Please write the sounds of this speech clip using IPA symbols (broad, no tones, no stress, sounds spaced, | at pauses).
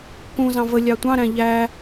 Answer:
k ũ z ɑ̃ v ə lʲ ɑ tʷ ɑ̃ ɾ æ̃ ʎ æ